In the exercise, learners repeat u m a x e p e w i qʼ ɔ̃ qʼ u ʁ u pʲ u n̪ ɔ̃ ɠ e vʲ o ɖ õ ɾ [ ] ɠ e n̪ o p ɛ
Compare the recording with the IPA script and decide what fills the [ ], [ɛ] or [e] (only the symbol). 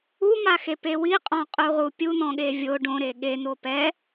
e